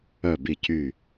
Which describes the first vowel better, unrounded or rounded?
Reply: rounded